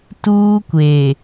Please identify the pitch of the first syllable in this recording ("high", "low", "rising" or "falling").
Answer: high